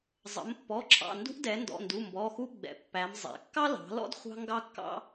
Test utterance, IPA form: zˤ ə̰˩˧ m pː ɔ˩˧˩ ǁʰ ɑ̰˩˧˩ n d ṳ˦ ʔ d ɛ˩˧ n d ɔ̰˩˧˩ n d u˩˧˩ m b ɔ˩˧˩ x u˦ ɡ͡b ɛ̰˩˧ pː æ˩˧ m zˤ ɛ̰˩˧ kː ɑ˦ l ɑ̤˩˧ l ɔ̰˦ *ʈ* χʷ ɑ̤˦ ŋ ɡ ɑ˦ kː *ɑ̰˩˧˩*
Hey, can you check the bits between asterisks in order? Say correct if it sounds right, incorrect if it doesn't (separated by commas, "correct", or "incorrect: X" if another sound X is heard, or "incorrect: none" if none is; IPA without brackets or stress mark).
incorrect: d, incorrect: ɑ̰˦